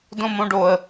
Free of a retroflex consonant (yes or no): no